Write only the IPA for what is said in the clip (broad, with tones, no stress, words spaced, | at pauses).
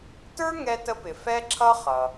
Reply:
tə˞˥ŋɛ˧tə˧pɪ˩ fɛ˥ǁʰʌ˥ χʌ˩